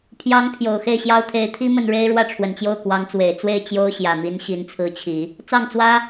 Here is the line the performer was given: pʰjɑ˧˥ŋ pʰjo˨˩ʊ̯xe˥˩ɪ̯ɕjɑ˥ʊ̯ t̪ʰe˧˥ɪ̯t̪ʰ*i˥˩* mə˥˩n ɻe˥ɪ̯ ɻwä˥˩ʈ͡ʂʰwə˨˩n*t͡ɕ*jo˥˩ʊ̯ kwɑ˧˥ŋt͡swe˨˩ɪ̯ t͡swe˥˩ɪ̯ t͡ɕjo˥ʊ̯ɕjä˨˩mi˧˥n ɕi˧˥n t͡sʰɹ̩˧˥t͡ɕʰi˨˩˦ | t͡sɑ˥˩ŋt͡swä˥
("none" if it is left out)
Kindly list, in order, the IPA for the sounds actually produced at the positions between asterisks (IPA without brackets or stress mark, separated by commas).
i˥, t͡ɕ